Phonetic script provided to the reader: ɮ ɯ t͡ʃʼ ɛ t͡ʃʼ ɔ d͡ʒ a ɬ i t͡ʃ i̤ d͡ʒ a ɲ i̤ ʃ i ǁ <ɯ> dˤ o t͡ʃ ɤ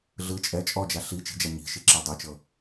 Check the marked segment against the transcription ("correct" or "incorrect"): incorrect